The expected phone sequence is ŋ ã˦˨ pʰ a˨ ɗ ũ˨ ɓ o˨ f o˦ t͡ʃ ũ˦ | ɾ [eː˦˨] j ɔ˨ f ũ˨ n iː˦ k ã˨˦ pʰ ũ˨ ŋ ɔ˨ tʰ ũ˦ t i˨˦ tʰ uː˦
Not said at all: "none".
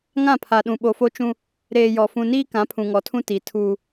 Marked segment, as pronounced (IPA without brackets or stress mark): eː˨